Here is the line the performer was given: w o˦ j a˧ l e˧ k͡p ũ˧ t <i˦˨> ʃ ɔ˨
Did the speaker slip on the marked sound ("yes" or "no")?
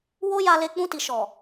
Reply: yes